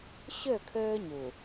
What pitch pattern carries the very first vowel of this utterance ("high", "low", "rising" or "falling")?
falling